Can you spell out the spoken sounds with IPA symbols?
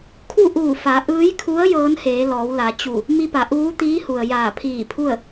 kʰ u˥˨ ʔ uː˧˩ f a˩˧ ʔ ɯː˧˥ j kʰ u˧˥ ə̯ j ɤː˧˥ n h eː˩˧ l ɔː˩˧ w l a˩˧ t͡ɕ u˧˩ | m i˧ p a˩˧ ʔ uː˧˥ t̪ iː˧˥ h u˩ ə̯ j aː˧˩ pʰ iː˧˩ pʰ u˥˨ ə̯

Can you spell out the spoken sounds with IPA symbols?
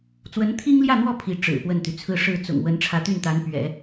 t͡s w ə˧˥ n t̪ʰ i˥ ŋ l j ä˥˧ n̪ w ɔ˥˩ pʰ i˧˥ ʈ͡ʂ ɻ̩˨˩ p w ə˥˩ n t̪ y˩ t͡sʰ ɹ̩˥˧ ʂ ɻ̩˥˩ t͡s ʊ̰˨˩ ŋ w ə˧˥ n ʈ͡ʂʰ ä˧˥ t̪ y˥˩ n t̪ a˧˥ n p ɥ ɛ̰˨˩˦

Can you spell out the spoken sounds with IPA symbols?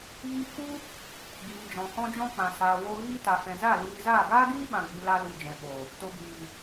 ɣ i˧ k u˦ | ɡ iː˨ d͡ʒ ɔ̃˨ h ɔ̃˧ d͡ʒ ɔ̃˧ k͡p ã˨ s aː˨ w o˧ ɣ iː˧ t a˨ f ɛ̃˨ z a˦˨ l iː˧ z aː˦˨ ɡ aː˦ ɡ iː˦ ɓ ã˨ ɡ͡b i˨ l a˧ l u˨ d͡ʒ ɛ̃˨ ɓ o˨ | t o˨ b iː˨

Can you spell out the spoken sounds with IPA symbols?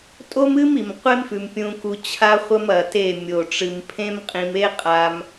tʼ o˦ m ɨ˦ m i˨ m qʷ e˦ m f ʉ˨ m pʲ ũ˧ k u˧ t͡ɕʰ a˦ χʷ ɐ˦ m ɐ˨ t e˦˨ mʲ o˨ ʈ͡ʂ ɨ˨ m pʰ ẽ˦ m qʼ ĩ˧ m e˦ qʼ a˧ m

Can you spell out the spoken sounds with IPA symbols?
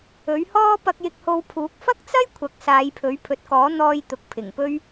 ɵ˨˥ ɥ h ɔː˥ p ɐ˧ k̚ j ɪ˧ k̚ h o˧ w pʰ uː˨˥ k̚ f ɐ˥ k̚ t͡s ɐ˥ j kʷʰ ɐ˨˥ k̚ s aː˨˧ j pʰ ɵ˨˥ ɥ pʰ ɵ˨ t̚ k ɔː˨˥ n̪ ɔː˧ j t̪ ʊ˨ k̚ pʰ ɪ˨˩ ŋ p ɵ˥ ɥ

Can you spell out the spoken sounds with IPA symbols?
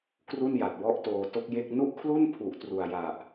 k r u˥˩ n j a˨˩ t̚ w ɔ˥˩ ʔ t oː˧ t o˥˩ k̚ j e˥˩ k̚ n u˥˩ ʔ kʰ l u˥˩ n pʰ u˨˩ ʔ t r u˨˩ a̯ j a˨˩ ʔ

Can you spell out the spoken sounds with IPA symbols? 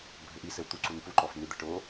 bʱ ɘ ʔ i s ɘ w t̪ u ǀ u n p u ǃ ɔ f n ɨ d̪ ɛ ʈ o

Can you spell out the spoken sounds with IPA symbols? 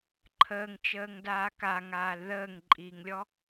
ǃʰ əː ŋ t͡ʃ əː ŋ d aː k a ŋ aː l ð əː ŋ ǃʼ iː ŋ lʲ ɔ

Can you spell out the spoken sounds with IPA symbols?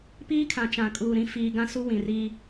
p iː˦ kʰ ã˨ t͡ʃ ã˨ kʼ uː˨ ɾ ĩ˦ f iː˦ ɡ ã˦ s u˦ w ĩ˨ r i˦

